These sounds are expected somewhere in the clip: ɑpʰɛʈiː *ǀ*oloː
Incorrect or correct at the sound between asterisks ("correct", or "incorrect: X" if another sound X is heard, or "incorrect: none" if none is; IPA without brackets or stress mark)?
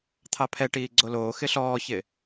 incorrect: ɡ͡ǀ